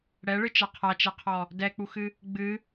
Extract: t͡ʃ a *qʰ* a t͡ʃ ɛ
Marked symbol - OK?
yes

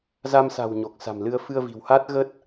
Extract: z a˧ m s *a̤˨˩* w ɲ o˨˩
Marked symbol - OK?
yes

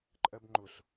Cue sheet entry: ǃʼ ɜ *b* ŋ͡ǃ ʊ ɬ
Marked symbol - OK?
yes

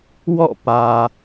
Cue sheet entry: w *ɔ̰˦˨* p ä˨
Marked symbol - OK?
yes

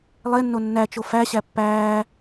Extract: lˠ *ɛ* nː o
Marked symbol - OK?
no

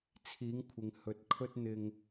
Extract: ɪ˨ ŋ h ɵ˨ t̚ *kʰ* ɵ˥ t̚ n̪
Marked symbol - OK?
yes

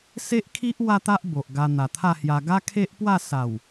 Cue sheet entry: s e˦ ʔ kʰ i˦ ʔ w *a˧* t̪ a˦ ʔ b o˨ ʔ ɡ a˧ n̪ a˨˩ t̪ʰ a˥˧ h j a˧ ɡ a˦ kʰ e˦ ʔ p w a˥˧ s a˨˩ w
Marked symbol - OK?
no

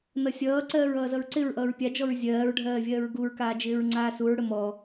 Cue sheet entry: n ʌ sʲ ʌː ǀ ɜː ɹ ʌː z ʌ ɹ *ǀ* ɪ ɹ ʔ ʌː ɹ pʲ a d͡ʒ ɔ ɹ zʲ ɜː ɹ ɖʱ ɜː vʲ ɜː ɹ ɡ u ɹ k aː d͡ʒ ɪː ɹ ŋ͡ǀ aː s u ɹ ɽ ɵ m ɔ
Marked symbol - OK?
yes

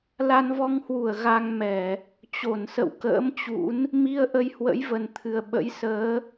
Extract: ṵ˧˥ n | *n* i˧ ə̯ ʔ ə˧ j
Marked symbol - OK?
no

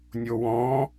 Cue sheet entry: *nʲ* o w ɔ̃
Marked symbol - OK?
yes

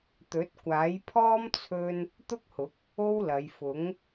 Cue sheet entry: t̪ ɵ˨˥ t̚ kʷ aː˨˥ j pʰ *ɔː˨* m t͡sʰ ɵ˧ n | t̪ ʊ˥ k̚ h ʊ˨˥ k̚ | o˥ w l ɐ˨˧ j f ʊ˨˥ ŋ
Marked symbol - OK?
no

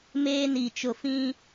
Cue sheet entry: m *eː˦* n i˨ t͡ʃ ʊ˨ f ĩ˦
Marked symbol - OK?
yes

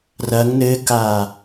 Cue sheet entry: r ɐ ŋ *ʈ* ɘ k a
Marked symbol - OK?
no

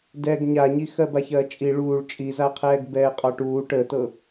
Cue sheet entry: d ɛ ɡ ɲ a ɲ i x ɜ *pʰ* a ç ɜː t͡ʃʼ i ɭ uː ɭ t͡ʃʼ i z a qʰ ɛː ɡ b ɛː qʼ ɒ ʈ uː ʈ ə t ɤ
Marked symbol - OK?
no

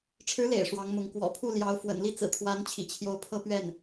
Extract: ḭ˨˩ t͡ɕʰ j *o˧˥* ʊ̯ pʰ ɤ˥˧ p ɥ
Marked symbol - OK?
yes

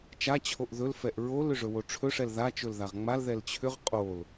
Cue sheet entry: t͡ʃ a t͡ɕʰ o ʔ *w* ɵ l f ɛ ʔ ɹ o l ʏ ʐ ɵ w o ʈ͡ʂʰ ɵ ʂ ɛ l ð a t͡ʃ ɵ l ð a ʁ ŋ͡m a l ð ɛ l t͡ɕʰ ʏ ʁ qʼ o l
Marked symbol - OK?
no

